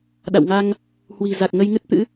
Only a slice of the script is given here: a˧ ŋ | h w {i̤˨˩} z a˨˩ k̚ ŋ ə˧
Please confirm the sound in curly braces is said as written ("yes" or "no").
yes